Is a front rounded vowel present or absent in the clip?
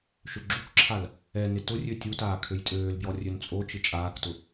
present